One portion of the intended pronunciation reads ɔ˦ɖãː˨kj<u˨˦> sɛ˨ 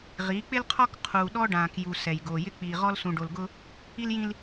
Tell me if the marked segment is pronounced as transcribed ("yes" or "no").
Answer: no